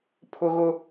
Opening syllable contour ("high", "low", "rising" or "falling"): high